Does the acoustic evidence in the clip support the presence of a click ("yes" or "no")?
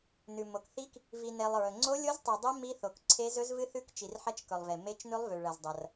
yes